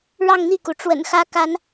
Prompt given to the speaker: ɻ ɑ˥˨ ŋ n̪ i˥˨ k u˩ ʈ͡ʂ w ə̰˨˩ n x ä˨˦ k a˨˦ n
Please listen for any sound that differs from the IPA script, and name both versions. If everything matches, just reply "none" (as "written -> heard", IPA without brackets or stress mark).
none